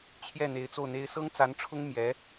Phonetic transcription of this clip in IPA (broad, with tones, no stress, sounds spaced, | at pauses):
t͡ɕʰ j ɛ˥˩ n̪ e˧˥ ɪ̯ t͡s o˥˩ ʊ̯ n̪ e˥ ɪ̯ s ɤ˥ ŋ t͡s a˧˥ n ʈ͡ʂʰ ʊ˥ ŋ m j ɛ˧˥